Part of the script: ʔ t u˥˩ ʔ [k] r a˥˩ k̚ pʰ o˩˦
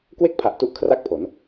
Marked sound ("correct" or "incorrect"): incorrect